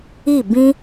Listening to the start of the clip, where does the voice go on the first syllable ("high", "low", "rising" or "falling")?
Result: falling